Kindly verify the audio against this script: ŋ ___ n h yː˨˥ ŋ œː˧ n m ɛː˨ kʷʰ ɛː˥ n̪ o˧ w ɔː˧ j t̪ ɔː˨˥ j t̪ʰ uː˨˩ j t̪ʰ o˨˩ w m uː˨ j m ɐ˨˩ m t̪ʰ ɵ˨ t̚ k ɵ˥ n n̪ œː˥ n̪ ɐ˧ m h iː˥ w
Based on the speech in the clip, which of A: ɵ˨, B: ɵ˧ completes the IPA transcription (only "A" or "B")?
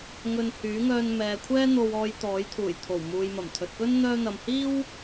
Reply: B